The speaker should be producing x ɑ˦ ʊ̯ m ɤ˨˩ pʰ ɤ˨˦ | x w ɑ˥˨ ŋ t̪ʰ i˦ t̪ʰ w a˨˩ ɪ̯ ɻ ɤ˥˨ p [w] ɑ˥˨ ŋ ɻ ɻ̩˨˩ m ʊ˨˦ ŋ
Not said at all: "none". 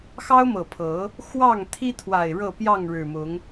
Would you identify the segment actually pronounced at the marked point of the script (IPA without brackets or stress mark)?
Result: j